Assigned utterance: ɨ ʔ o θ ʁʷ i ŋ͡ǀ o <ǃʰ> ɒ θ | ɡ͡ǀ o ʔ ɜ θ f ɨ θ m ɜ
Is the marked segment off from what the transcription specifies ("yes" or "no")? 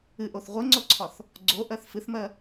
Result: yes